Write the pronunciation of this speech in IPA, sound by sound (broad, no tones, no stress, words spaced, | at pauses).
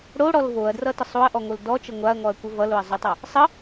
ɽoɽɔl voɐ̯drʌtə sˤoɐ̯ʔɔŋol dɔt͡ʃə ŋʷaɐ̯ŋɔɐ̯kʷə vʌloɐ̯zˤotˤʌ | sˤə